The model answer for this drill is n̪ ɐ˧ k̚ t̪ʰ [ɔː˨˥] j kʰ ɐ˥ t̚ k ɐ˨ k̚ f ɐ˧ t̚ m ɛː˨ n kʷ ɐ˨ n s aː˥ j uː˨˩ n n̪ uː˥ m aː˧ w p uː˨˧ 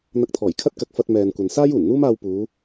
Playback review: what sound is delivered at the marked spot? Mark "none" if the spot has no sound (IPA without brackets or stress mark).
ɔː˨˩